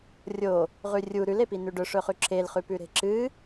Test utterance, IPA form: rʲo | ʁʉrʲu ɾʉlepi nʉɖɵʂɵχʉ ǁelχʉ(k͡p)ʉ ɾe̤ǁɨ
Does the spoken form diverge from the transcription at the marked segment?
yes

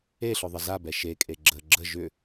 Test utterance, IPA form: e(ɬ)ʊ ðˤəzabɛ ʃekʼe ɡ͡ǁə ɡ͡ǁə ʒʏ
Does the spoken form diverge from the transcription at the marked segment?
no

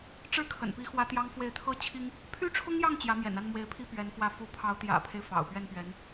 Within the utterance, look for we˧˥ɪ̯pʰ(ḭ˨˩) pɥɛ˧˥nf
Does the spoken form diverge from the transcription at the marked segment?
yes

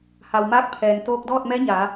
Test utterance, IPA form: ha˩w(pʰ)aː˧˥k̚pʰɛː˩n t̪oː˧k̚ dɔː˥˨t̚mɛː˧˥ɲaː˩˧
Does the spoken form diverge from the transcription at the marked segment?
yes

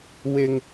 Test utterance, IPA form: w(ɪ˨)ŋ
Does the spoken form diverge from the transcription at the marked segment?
yes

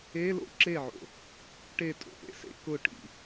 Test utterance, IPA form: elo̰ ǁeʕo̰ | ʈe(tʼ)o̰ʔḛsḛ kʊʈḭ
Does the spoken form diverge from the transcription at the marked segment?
no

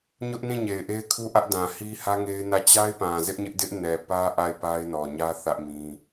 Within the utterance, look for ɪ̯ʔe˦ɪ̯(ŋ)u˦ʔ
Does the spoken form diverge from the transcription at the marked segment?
yes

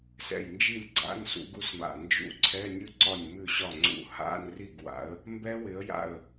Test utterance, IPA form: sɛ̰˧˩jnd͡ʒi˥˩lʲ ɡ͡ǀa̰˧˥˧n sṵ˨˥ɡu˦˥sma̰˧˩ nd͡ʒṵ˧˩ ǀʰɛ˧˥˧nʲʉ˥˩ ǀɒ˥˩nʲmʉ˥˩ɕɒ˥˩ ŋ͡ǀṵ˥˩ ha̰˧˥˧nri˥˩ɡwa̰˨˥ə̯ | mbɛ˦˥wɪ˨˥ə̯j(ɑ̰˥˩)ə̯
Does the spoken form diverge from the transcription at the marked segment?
yes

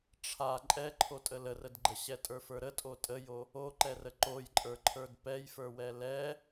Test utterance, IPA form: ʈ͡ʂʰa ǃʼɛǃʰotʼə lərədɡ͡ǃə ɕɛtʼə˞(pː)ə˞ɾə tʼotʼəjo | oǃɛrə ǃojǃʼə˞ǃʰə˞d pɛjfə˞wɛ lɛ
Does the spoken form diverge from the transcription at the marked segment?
yes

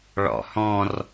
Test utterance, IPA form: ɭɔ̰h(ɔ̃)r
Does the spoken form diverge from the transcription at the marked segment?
no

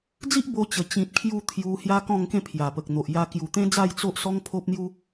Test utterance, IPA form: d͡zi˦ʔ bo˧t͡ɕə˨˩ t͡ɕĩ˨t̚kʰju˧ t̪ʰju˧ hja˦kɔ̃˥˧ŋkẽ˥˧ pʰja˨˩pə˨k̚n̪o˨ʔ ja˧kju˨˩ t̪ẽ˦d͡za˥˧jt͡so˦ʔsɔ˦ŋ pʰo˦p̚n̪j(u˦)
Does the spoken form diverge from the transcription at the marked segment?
no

